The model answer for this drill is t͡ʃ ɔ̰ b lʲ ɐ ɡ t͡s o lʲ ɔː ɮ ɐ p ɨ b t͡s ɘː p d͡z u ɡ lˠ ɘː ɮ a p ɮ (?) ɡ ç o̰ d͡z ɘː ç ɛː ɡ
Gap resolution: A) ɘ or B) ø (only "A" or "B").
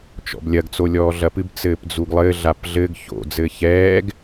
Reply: A